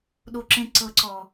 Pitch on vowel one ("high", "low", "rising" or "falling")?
low